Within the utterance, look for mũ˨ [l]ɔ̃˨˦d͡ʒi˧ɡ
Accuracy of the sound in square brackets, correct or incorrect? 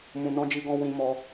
incorrect